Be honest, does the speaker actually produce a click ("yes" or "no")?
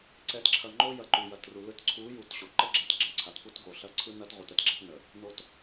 yes